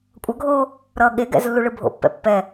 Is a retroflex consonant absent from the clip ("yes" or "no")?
no